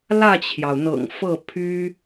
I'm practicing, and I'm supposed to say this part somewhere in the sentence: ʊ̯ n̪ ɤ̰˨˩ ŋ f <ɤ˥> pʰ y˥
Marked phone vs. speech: incorrect: ɤ˥˩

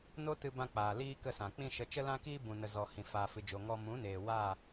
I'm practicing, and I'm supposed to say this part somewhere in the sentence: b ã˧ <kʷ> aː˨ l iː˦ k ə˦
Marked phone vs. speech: incorrect: k͡p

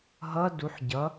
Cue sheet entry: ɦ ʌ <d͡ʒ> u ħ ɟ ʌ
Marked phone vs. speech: incorrect: d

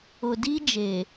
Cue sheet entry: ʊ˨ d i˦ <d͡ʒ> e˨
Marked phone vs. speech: correct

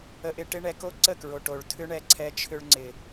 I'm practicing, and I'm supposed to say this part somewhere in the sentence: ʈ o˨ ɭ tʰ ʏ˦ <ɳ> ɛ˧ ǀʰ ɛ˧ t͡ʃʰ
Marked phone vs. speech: correct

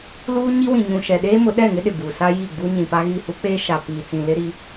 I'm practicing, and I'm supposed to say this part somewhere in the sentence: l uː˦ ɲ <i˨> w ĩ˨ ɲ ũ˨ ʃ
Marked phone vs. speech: incorrect: i˦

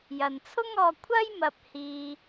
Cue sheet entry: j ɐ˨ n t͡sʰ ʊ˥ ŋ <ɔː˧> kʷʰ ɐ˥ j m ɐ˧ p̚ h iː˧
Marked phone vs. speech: correct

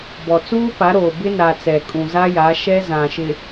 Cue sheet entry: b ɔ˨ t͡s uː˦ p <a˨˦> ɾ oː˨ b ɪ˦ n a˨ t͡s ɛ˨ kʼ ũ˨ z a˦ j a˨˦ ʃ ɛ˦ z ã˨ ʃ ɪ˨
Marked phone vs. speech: correct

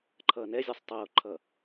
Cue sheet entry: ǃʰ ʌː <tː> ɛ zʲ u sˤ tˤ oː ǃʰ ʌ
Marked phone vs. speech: incorrect: n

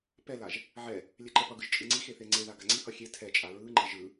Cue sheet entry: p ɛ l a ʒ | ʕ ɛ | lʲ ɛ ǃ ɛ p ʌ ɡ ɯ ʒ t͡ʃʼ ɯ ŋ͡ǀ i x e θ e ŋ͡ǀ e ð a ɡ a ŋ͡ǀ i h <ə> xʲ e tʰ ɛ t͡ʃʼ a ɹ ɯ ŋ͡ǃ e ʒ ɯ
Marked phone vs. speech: incorrect: ʌ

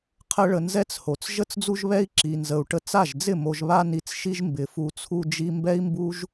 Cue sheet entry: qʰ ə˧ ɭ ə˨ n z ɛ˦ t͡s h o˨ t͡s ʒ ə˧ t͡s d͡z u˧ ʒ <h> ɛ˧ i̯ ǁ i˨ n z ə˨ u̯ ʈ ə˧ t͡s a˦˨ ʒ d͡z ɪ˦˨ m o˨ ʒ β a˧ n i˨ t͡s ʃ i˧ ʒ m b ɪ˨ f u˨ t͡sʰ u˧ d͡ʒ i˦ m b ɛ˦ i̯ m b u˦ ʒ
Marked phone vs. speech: incorrect: β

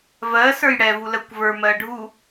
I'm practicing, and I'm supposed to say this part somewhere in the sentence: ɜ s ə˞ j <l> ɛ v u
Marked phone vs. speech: incorrect: ɽ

